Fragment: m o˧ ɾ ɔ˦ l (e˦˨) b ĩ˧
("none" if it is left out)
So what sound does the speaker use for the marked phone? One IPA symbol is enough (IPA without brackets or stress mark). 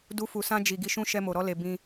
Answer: e˧